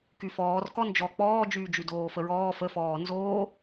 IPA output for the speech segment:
kyfɔːrkɔ nd͡ʒɔ k͡pɔːd͡ʒyːd͡ʒy doːfəɹɔː fəfɔː nzoː

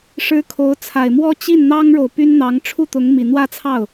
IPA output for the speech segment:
ʂɻ̩˥kʰo˧˥ʊ̯ t͡sʰa˨˩ɪ̯mwɔ˥ t͡ɕi˥˩nn̪ɑ˥ŋɻo˨ʊ̯ py˥nn̪ɑ˧˥ŋ ʈ͡ʂʰu˥˩t̪ʊ˧˥ŋ mi˨˩ n̪wä˥˧t͡sʰɑ˥˩ʊ̯

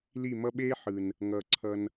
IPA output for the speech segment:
li˦˨mʌ˦ ɓeː˦ ħɯ˨n | ŋʌː˨ǀʰʌ˧n

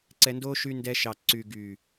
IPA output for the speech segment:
ǀɛ˧ndo˦ ʃy˧ndɛ˧ ʃɑ˨ǀy˨ ɡy˨

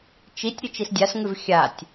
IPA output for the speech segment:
t͡ʃitʲɾʲʉ t͡ʃisdʲasŋʉv xʲatʲ

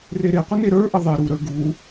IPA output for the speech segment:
reɾeqʷə neɾə˞ʔə ðˤe ɾuɾə˞ ɡu

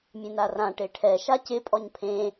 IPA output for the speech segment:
mʲẽnarã ʈeʈʰɛ ʃacɪ pʼɔɲpʰẽ

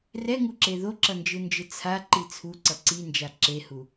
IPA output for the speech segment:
rɛŋuǁe ðoǁʌnd͡ʒɯnd͡ʒɯ t͡sʰaǃi t͡sʰuǀʌ ǀind͡ʒa ǁehu

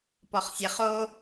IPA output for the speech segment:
pɔχsʲeχo

